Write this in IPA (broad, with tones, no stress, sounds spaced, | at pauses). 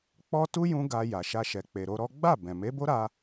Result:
k͡p ɔ˦ t u˦ j ũ˧ ɡ a˧ j a˨ ʃ a˧ ʃ ɛ˨ k͡p e˨ ɾ o˧ ɾ ɔ˦ ɡ͡b a˦˨ b ɛ̃˨ m e˨˦ b o˦ ɾ a˧